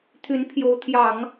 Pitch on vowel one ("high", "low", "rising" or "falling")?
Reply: rising